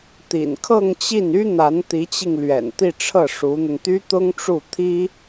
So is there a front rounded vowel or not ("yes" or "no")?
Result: yes